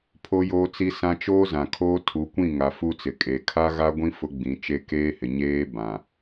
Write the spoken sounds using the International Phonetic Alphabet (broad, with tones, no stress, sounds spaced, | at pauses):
pʰ o˦ j oː˦ t͡s i˦ s ã˦ t͡ʃ oː˦ z ã˨ kʰ oː˦ tʰ u˨˦ kʷ ĩ˦˨ ŋ a˨ f u˦ t͡s ɪ˨ kʼ e˨ kʰ a˦ ɣ a˦ ɡʷ ĩ˦ f ʊ˦ ɡ͡b ĩ˨˦ t͡ʃ e˦ k eː˦ h ɪ˨ ɲ eː˦ b ã˨